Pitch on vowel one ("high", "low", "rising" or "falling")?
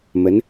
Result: rising